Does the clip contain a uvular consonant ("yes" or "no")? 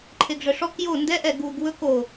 no